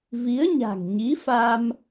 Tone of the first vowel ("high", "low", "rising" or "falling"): rising